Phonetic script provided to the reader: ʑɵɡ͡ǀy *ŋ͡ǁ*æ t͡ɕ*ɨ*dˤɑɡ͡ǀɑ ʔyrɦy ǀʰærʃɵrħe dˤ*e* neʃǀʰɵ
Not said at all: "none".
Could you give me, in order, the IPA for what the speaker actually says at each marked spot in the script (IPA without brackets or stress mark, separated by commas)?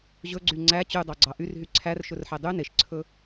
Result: ŋ͡ǀ, y, y